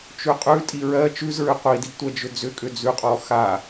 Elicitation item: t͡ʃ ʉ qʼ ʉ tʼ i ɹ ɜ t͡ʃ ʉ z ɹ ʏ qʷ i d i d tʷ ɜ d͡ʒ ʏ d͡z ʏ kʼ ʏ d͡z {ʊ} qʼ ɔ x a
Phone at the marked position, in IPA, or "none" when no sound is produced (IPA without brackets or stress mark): ʉ